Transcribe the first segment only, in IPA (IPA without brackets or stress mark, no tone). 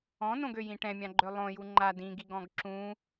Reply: ɔ̃